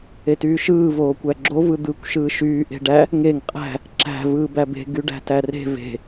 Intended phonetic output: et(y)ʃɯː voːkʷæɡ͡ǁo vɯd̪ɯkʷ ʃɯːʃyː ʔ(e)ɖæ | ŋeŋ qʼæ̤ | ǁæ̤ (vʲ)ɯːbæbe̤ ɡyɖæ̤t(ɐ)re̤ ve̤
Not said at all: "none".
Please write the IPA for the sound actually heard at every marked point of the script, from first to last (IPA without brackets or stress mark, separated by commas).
yː, e̤, v, æ